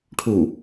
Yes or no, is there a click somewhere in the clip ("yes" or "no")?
no